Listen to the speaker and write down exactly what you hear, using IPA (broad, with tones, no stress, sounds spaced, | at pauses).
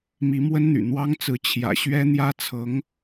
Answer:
m i˧˥ m w ə˥ n n̪ y̰˨˩ n̪ w ɑ˥ ŋ t͡s ɹ̩˧˥ t͡ɕʰ j ä̰˨˩ ɕ ɥ ɛ˥ n̪ j ä˥ t͡sʰ ɤ˧˥ ŋ